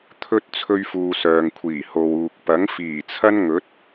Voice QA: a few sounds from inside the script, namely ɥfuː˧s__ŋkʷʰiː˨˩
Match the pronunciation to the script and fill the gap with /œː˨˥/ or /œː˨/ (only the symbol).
œː˨